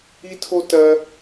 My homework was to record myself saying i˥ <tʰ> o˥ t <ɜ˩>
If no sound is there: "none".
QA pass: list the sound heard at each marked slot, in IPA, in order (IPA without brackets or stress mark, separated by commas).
tʰ, ɜ˥